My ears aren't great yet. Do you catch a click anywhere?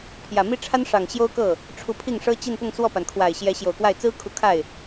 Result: no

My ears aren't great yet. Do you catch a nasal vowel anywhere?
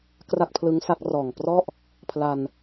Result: no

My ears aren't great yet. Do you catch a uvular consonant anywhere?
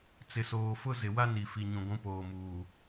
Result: no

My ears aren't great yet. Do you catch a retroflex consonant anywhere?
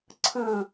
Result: no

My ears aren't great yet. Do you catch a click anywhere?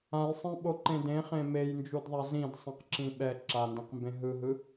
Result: yes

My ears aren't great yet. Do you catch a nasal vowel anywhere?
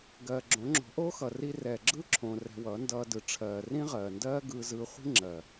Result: yes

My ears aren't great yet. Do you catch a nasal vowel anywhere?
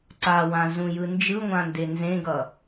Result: yes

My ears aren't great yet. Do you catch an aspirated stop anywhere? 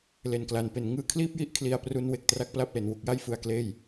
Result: yes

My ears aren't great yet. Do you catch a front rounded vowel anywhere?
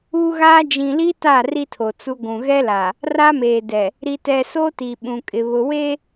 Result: no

